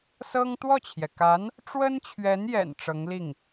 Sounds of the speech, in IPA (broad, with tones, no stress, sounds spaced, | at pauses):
s ɤ˥ ŋ t̪ w ɔ˥˩ t͡ɕʰ j ɛ˩ k a˧˥ n | ʈ͡ʂ w ə˥ n t͡ɕʰ ɥ ɛ˧˥ n j ɛ̰˨˩ n ʈ͡ʂ ɤ˧˥ ŋ l i˥˩ ŋ